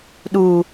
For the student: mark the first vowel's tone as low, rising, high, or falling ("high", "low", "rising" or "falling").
low